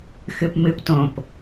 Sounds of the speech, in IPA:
xɨpmɨptõp

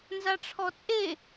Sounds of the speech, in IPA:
nzaʈ͡ʂʰɔt͡sʼe

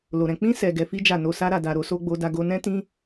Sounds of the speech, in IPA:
lo˨ɾɛ̃˨ k͡pĩ˧sɛ˨ ɡɛ˨˦ fi˦d͡ʒa˦˨no˧ sa˦ ɾa˧da˧ɾo˦so˦ ɡ͡bo˦da˦ ɡo˧nɛ̃˦tĩ˦

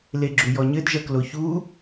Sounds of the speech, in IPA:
leɡ͡ǁujɔɲɘd ʒɐkloçu

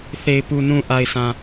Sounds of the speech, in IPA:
θe˨ɪ̯pu˨ nũ˨ ʔa˨ɪ̯sʰã˨

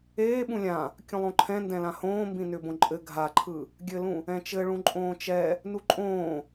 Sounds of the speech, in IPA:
eː ɓũlʲã | kʲũlˠõǃʰɛ̃ ndɛ̃lãhõː mbĩnʏbõǃʼɘ ɡʱaǃʰɯ | ɡʲɘlũ | ɛ̃t͡ʃɘɭũ ǃʼõːt͡ʃɛ | nuǃʼõː

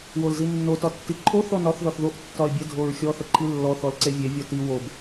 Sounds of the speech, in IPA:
wolzinːo tɒtːiǃʰo θɔnɒθ ðɒθðoʔ tːɒɪ̯bʲə dʱoɹxʲɔ θəǃʰilːɔ θɔlǀevʲe vʲɔti wob

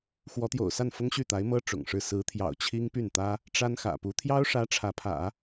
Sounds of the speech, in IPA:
xwɔ˧˥t̪jo̰˨˩ʊ̯sa˥˩n fʊ˥ŋɕy˥˩t̪a˧˥ɪ̯mɤ˥ ʈ͡ʂʊ̰˨˩ŋʂɻ̩˥˩ sɹ̩˧˥t̪ʰjɑ̰˨˩ʊ̯ t͡ɕʰi˥ŋpy˥˩nt̪ä˥ | ʈ͡ʂa˥nxä̰˨˩pu˧˥ t̪ʰjɑ˥ʊ̯ʂä˧˥ ʈ͡ʂʰä˧˥pʰä̰˨˩˦

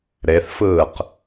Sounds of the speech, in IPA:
ɾeθfɯːq

